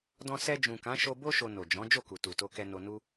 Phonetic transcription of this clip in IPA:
d ɔ̃˧ s ɛ˧ d͡ʒ ũ˨ k ã˨˦ ʃ o˧ b o˦ ʃ o˧ n o˨ d͡ʒ ɔ̃˨˦ d͡ʒ o˦˨ k u˨ t u˨ t o˧ k ɛ˧ n o˧ n u˦

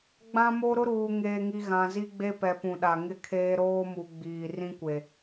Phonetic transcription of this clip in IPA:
ɡ͡b ã˦ m o˦ ɾ ʊ˦ ɾ uː˨ ŋ eː˨ ŋ i˨ ɣ ã˨ z i˦ ɡ͡b e˦ p ɛ˨ p ũ˨ ɗ a˨ ŋ ɪ˦ kʰ eː˦ ɾ oː˦ m u˨ ɡ͡b iː˨ r ĩ˦ kʷ e˨

